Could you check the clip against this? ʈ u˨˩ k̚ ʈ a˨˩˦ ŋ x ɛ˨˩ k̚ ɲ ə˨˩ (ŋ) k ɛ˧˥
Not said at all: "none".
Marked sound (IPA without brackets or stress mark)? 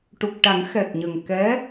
ŋ